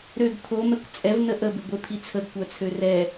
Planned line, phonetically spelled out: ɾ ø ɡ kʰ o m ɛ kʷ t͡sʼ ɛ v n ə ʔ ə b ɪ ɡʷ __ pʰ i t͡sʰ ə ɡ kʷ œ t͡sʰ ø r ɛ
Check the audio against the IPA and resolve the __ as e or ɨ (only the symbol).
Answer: e